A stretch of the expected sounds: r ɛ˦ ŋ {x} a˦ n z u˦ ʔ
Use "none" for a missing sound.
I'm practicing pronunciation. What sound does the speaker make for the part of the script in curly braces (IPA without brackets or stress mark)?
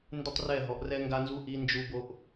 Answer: ɡ